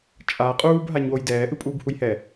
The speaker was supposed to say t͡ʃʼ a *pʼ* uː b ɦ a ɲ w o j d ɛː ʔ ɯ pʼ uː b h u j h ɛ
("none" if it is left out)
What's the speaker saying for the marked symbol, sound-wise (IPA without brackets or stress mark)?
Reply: qʼ